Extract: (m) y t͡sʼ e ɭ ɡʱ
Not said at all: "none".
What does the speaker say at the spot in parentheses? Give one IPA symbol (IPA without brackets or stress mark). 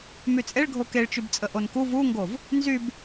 m